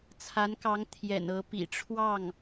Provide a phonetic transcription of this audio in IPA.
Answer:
t͡sʰa˧˥nkɑ˧˥ŋ t̪ʰjɛ̰˨˩n ɤ˧˥pḭ˨˩ʈ͡ʂʰwɑ˥˩ŋ

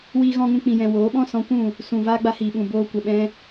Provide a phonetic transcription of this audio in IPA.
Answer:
wiː˧ɣɔ̃˧ŋũ˧ k͡pĩ˨jɛ̃˨ woː˨˦ɓɔ̃˦ sɔ̃˨˦kʷũ˦˨ | sũ˨ vaː˦ɡ͡ba˧hiː˨ɓũ˨ boː˧kʷə˨ ɓɛ̃˦

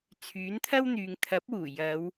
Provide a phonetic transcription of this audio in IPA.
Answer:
t͡sʰyː˨˥nt̪ʰɐ˥wn̪yː˨˧ŋ t̪ʰɐ˨˥p̚wuː˨˩ jɐ˨˧w

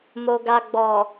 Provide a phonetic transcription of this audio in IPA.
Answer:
mo˨ɡa˨ ɡ͡bɔ˨

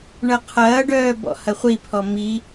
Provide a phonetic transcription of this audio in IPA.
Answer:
ɳɐqʰɐːɖœː bɔ̰hɐχʷipʰɔ mi

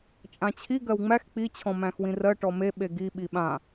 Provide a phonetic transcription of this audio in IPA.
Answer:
t͡ʃʼãt͡ɕʰi ɡɜwŋ͡mæx k͡pi t͡ɕʰɔ̃mæ̃xwĩrɜ ʈɔme ɓeɡi ɓiɓã

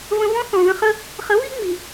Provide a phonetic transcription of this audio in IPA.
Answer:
və̃˧vɔ̃˦ θɔ̃˨ðə̃˧χə˦ | χə˨˦βi˦ŋ͡mi˨

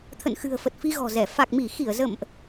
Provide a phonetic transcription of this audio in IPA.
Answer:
t̪ʰə̰˧˨nxɨ̤˨˩ə̯fə˨˩t̚ fi˧ɣɔ̤˨˩zɛ˧˩ fa˨˩k̚mi˧˩xi˧˩ə̯ zə̰˧˨mʔ

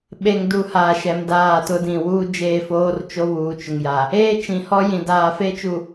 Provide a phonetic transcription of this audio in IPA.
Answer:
ɓe˨ŋdu˨ haː˨ʃɛ˨m daː˦˨tʊ˦dĩ˨ wuː˦d͡ʒeː˦˨foː˦r t͡ʃo˦βuː˨t͡ʃʊ˨ŋ ja˨ | eː˦t͡ʃĩ˨hɔ˦jĩ˨ daː˨fe˦t͡ʃu˨

